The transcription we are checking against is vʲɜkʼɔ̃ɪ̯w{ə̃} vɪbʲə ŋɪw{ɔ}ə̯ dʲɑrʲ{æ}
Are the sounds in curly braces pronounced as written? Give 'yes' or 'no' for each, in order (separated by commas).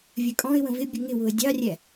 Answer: yes, no, yes